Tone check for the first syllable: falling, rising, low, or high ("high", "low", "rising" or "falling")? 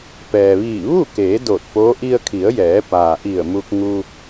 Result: low